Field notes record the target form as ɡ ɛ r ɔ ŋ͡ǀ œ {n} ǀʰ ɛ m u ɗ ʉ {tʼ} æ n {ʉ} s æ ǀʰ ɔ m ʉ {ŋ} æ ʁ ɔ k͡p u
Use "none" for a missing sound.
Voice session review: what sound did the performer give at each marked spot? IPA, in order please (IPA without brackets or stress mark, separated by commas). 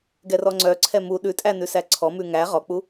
none, tʼ, ʉ, ŋ